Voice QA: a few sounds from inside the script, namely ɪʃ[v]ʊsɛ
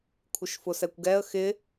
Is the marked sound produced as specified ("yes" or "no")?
no